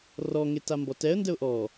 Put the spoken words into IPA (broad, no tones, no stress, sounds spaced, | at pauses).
r ɔ ŋ e t a m b ɔ t ɛ ə̯ n d ə ʊ̯ ʔ ɔ